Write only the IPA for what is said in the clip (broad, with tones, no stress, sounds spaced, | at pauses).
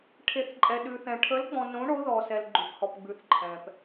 ʈʰ e˨˦ θ ǃʼ ɛ˨ ɗ ʉ˨ θ ɛ̃˨ ʈʰ ə˨˦ l ɡ͡b ɔ̃˨ n õ˨˦ ɳ o˨˦ ð ɔ˨ s ɛ˨ l ɡ͡ǃ ʉ˨ p h ɔ˨ p ɡ͡b ʉ˨˦ θ ǃʰ ɛ̃˨ p